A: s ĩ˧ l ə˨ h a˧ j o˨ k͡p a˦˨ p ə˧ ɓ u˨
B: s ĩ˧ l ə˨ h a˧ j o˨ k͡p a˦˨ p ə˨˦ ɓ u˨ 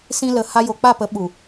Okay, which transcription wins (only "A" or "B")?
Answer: B